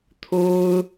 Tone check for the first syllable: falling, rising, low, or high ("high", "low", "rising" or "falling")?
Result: high